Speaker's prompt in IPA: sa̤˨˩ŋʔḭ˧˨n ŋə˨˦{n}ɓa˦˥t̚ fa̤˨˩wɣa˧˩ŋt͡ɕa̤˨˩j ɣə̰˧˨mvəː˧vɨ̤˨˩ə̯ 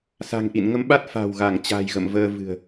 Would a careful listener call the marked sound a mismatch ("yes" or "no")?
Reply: yes